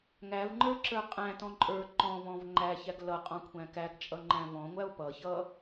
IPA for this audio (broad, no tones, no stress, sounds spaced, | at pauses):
ŋ æ v ŋ͡ǃ ə˞ ǁ ə˞ qʼ æ̃ t ɔ̃ ǃʼ ə˞ ǃ ɔ̃ v ɔ̃ v ŋ͡ǃ æ ç æ ɡ l ʌ qʼ ɔ̃ kʷʰ æ̃ k æ ɡ t͡ʃʼ ʌ ŋ͡ǃ æ̃ v ɔ̃ ŋʷ æ o̯ p ʌ ç ʌ